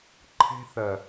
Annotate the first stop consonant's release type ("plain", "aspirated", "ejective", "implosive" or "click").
click